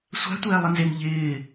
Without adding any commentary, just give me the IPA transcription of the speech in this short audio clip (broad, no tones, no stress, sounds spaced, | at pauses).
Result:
sʷ a̤ tʷ ɛː lˠ ɪ n z e m ʎ ɪː